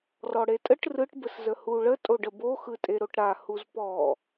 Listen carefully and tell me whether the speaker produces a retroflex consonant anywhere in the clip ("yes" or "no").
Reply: yes